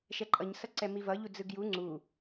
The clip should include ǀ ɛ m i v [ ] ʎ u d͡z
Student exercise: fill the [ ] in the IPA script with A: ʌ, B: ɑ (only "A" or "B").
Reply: A